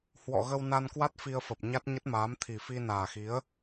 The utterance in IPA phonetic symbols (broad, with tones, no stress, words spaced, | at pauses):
hwɔ̰˧˨ɣə˧w na˧nkwa˦˥t̚ fi˧ə̯fə˨˩p̚ɲa˦˥t̚ ɲə˦˥t̚maː˨˦mt̪ʰi˨˩ fi˧naː˨˩xi˨˦ə̯